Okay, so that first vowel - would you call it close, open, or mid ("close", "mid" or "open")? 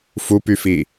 close